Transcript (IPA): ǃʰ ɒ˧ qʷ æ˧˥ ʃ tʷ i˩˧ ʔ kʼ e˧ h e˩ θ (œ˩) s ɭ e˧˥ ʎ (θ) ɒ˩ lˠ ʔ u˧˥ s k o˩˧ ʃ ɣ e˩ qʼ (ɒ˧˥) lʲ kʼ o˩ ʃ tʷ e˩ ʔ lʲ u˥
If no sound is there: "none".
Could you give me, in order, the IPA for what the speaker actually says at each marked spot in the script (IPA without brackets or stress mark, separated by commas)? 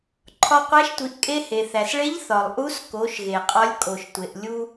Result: æ˩, θ, ɒ˧˥